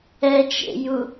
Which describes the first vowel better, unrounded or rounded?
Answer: unrounded